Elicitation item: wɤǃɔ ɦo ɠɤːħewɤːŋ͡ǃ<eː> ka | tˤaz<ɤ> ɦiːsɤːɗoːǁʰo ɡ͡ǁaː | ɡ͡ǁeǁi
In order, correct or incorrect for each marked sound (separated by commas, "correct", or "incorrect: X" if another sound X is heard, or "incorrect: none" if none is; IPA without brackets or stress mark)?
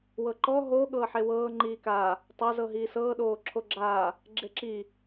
incorrect: iː, correct